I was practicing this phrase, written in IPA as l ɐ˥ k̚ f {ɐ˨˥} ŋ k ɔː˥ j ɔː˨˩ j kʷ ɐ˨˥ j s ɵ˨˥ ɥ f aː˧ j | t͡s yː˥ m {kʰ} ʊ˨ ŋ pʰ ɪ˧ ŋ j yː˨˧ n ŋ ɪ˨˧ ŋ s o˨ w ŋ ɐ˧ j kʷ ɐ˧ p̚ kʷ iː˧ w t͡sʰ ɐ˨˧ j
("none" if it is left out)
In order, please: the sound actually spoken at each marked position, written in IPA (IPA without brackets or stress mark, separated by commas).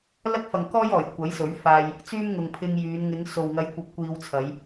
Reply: ɐ˨, ŋ